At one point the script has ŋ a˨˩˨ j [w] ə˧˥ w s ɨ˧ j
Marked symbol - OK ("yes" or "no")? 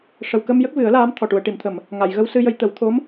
no